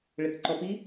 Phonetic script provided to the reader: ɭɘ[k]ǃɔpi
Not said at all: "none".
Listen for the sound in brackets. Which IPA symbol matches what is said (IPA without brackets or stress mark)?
k